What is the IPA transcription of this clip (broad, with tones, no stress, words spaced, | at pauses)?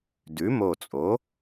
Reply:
dʉ˩˥mo˧˩t͡sʼo˩˥